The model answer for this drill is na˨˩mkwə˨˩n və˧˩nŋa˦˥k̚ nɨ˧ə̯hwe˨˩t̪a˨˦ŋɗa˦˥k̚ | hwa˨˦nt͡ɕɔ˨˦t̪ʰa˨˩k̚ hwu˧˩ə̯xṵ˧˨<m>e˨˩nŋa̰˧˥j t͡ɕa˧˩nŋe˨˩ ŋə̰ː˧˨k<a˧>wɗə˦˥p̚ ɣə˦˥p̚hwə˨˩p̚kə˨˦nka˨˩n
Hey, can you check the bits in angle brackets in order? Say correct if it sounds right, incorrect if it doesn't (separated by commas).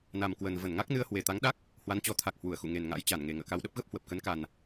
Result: incorrect, correct